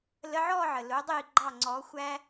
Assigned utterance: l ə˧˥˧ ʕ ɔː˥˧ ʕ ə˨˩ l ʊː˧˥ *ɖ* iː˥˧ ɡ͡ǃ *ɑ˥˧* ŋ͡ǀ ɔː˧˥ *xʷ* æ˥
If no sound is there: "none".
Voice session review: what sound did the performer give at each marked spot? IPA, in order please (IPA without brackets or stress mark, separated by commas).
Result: dˤ, ɑ˥˧, xʷ